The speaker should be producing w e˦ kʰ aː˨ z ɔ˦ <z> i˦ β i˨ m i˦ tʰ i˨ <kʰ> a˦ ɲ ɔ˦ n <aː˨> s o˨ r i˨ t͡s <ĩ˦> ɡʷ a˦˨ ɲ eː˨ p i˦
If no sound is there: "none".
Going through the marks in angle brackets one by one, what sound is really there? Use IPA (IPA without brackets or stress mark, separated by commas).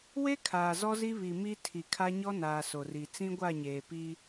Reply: z, kʰ, aː˨, ĩ˦